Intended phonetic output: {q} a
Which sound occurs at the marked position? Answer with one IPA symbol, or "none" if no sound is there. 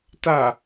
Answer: t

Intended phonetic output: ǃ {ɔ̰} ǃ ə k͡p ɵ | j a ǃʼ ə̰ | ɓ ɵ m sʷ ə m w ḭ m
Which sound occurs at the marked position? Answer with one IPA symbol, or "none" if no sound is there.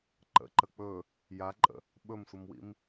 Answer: ə̰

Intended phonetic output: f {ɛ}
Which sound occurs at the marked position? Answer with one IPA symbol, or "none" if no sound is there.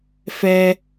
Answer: ɛ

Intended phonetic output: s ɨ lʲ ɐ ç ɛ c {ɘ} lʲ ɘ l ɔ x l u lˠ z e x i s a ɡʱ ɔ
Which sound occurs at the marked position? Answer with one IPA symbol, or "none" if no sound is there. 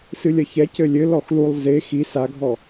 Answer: ɘ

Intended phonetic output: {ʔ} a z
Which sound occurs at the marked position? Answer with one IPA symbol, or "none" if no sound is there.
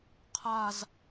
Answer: qʰ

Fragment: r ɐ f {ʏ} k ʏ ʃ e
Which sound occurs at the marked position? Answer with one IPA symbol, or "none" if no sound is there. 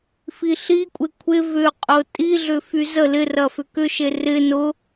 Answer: ʏ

